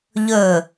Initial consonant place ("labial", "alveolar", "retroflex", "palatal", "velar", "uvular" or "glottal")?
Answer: palatal